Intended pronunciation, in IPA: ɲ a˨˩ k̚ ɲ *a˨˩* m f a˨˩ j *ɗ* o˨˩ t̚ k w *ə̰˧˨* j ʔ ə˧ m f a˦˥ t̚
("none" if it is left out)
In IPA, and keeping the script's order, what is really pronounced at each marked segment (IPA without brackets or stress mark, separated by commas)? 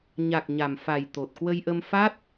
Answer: a˨˩, t̪, ə˧